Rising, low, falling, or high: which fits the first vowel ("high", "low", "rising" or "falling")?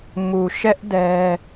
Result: low